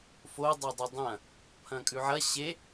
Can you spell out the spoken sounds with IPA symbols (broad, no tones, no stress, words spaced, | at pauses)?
fo dˤɐdˤodˤɐ̃ | pʰɐ̃kʼʉʕɐ ɕe